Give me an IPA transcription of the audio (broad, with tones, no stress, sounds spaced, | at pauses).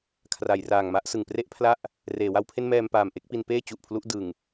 kʰ r a˩˦ j r aː˨˩ ŋ m a˥˩ ʔ s ɯ˨˩ ŋ p r e˥˩ ʔ pʰ l a˥˩ ʔ | r eː˩˦ w a˦˥ w pʰ e˥˩ n m ɛː˧ m p aː˨˩ m ʔ e˦˥ k̚ p i˧ n p eː˥˩ t͡ɕ u˨˩ ʔ pʰ l u˦˥ ʔ d ɯ˨˩ ŋ